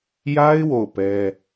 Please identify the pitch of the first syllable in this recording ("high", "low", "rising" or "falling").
high